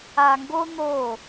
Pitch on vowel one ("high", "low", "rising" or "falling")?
low